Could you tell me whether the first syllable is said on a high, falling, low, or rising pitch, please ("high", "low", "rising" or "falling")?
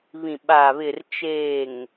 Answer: low